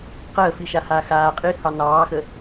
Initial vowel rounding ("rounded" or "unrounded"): unrounded